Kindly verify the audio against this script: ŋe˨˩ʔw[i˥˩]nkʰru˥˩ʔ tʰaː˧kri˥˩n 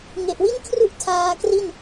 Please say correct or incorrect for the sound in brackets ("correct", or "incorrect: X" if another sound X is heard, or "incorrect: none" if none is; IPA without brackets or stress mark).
correct